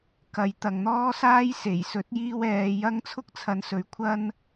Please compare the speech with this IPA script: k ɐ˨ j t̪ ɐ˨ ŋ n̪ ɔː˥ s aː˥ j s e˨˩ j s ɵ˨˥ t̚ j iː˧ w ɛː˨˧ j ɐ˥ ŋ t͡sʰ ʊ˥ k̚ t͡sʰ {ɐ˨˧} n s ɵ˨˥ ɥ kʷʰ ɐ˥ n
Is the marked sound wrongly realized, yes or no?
no